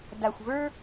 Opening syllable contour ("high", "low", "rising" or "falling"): low